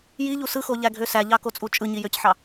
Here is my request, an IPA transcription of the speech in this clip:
j i ʎ u s ɯ x o ʎ æ ɡʱ ø s æ ʎ ɑ k o t͡sʼ u t͡ʃʼ ɯ ɲ i j ø c ħ ɑ

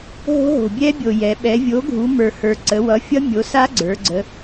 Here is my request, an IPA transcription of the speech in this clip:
ɦ o̤˦˥ ɦ o̤˨˩ bʲ ɛ˦˥ bʲ o˨˩ j ɛ˩˧ ɓ ɛ˩˧ vʲ o˩˥ ɡʱ u˩˧ m ə˞˨˩ h ə˞˨˩ ǀ ə˩˧ w ʌ˩˥ fʲ ʌ˦˥ mʲ o˩˥ s a˦˥ ɡ͡ǀ ə˞˩˧ ɡ͡ǀ ə˩˧

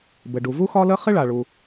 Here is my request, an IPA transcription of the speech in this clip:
b ɘ˩ ɖ u˩ v u˥ x ɒ˥ l ə˥ χ ɪ˥ ɭ a˩ ɭ u˩

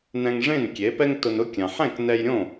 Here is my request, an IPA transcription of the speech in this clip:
n ɛ̃˧ ŋ ʐ ẽ˥˩ n kʲ e˩˥ p ɛ˥ ŋ t ʊ˧ n ʊ˥ kʲ ã˩ ħ ɛ̃˥˩ k n ɛ˧ j ɾʲ õ˥˩

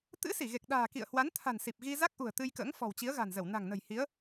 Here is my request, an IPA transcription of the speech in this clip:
t̪ ɨ̰˧˥ s i˧˩ ɣ e˨˩ k̚ ɗ a̤ː˨˩ k ḭ˧˨ ə̯ h w a˨˦ n t̪ʰ a̤˨˩ n s i˨˩ p̚ ɣ i˧ z a˦˥ k̚ ʔ ṳ˨˩ ə̯ t̪ ɨ˧ j k ə̰ː˧˥ ŋ f ɔ̤˨˩ w t͡ɕ i˨˦ ə̯ ɣ a̤˨˩ n z ə˧˩ w n a̤˨˩ ŋ n ə̤˨˩ j h i˨˦ ə̯

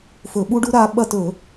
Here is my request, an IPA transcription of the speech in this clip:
f ɵ˧˩˧ ɓ u˦˥ ɖ u˦˥ ɾ a˦˥ ɓ ɐ˦˨ t ɵ˧˩˧

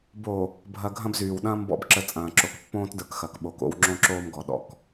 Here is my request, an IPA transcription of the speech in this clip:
b o˨ | bʱ ɐ˨ ɡʱ ɐ̃˦ b z yː˨ w ɗ ɐ̃ː˦ m b ɔ̰˨ b ǁ ə˨ t͡sʼ ɐ̃ː˨ ǁ o˨ k pː õː˦ t d ə˞˨ k x ɐ˨ k ɓ o˨˦ k o̰˦ w ŋ͡ǁ õ˦ ǁ oː˦ m ɡ ɔ˨ ɗ ɔ̰˨ k

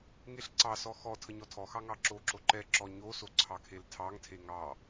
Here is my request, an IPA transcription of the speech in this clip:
ŋ e ɬ ǀ ɑ s ɔ x ɔ tʰ ə ɲ ɔ tʰ ɔ x ɑ ŋ ɑ ǁ o ǁ o ǃ ɛ ǁ ɔ ɲ o s o ǀʰ ɑ kʰ e l tʰ ɑ ŋ tʰ e ŋ ɑ

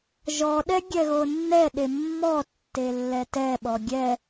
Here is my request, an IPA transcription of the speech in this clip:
ʒ ɔ ɗ ɛ ɡʲ ɛ ɣ o nː ɛ ɗ e mː ɔ tː e lː ɛ t ɛ ɓ ɔ ɡʲ ɛ

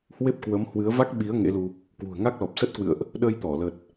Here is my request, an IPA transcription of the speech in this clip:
h w e˦˥ p̚ k w ə˨˦ m h w ɨ˨˦ ə̯ v a˦˥ k̚ ɓ i˨˦ ə̯ ŋ ḛ˧˥ l u˧ | k w ṳ˨˩ ə̯ ŋ a˦˥ k̚ l ɔ˨˩ p̚ s ə˦˥ t̚ k w ɨ̰˧˨ ə̯ ʔ | ɗ ə˧ j t̪ ɔ˧˩ l ə˨˩ t̚

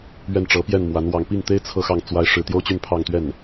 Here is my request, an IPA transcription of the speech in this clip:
ɥ ɛ˥˩ n ʈ͡ʂ ɤ˧˥ p j ɛ˥˩ n m w a˧˥ n w ɑ˥˧ ŋ p i˥˩ ŋ t̪ e˥ ɪ̯ t͡sʰ ɤ˥˧ x ɑ˥˩ ŋ t͡s w a˥ ɪ̯ ʂ ɻ̩˥˩ t̪ j o˥ ʊ̯ t͡ɕ y˥˧ n pʰ ɑ˥˧ ŋ t̪ ɥ ɛ˥˩ n

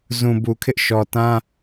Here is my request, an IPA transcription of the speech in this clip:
z ũ˨ b u˨ kʰ ɪ˦ ʔ ʃ ɔ˨ t ã˦

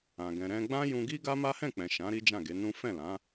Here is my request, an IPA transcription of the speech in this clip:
ã˨ ɡ ɛ̃˨ ɾ ɛ̃˧ ɡ͡b ã˦ j ũ˧ ɡ i˦ ɡ a˦ m a˦ h ɛ̃˦˨ k͡p ɛ̃˨ ʃ ã˨˦ ɾ i˦ d͡ʒ ã˦˨ ɡ e˨˦ n ũ˦ f ɛ̃˦˨ l ã˨˦

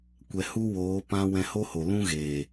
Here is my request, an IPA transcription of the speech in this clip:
kʷ ɛ˨ h u˦ w oː˨˦ p ã˦ w ɛ̃˧ h o˦ h o˨ l ũ˦ ɣ eː˨

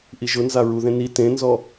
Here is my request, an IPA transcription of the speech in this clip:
ʔ i ʒ ʊ n z a ɹ u ð ẽ n i t ẽ n z ɔ

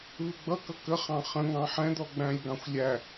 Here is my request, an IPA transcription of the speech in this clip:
β ɪ ɡ͡b ʌ k ʌ k ə χ ɑ̃ χ ə̃ ŋ ɑ̃ ħ ɛ̃ d̪ ɔ ɡ͡b æ̃ lʲ ɡ ɑ̃ xʷ lʲ æ

